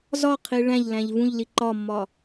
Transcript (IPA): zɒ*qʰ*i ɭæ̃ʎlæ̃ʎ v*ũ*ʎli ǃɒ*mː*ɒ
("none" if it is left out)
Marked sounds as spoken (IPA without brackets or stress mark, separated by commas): qʰ, ũ, mː